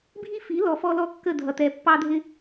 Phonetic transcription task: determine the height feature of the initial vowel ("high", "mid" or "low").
high